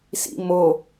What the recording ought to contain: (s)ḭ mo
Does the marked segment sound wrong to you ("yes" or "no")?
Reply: no